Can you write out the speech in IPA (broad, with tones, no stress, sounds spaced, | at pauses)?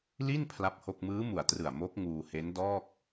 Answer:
l i˥˩ n pʰ l a˥˩ p̚ h o˥˩ k̚ m ɯː˦˥ m u˨˩ a̯ t r ɯ˨˩ a̯ m o˦˥ k̚ ŋ uː˧ h e˦˥ n d ɔː˥˩ k̚